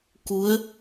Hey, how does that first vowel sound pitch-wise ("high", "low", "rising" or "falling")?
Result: rising